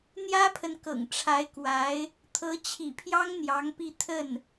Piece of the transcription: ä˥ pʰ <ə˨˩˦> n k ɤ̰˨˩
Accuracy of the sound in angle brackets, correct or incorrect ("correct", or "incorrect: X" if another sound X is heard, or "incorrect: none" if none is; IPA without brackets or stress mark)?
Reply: incorrect: ə˨